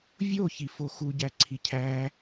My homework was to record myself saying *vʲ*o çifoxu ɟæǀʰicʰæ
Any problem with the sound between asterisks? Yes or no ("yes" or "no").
no